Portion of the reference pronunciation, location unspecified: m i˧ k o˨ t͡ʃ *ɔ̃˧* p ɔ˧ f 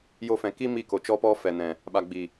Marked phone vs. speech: incorrect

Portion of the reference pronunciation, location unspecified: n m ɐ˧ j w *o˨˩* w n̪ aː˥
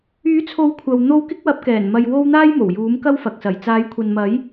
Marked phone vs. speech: incorrect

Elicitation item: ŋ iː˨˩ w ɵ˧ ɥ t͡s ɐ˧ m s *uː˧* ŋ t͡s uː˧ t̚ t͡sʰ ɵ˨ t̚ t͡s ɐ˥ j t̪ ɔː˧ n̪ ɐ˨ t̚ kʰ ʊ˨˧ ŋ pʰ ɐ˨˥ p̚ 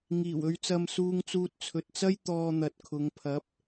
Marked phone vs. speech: correct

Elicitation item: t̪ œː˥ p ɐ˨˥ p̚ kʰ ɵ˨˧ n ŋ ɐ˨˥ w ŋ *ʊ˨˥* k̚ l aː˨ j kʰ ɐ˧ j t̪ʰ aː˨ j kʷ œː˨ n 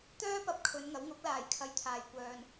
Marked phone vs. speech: correct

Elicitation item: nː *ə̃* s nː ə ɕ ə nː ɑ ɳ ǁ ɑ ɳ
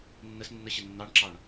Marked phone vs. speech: incorrect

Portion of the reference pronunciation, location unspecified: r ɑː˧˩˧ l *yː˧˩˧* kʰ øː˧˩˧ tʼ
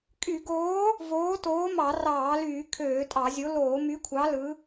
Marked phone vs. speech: correct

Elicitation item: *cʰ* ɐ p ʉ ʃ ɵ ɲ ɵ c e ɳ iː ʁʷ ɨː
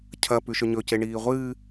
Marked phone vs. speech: correct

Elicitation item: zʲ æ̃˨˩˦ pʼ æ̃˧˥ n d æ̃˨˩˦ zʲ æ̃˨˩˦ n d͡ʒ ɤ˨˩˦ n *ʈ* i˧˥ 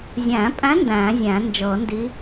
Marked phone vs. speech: incorrect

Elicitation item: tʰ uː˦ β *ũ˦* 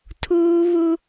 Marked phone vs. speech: incorrect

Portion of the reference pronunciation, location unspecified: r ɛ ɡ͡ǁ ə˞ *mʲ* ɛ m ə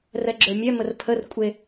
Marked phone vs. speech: correct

